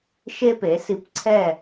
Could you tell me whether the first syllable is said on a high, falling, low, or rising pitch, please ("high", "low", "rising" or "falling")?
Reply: high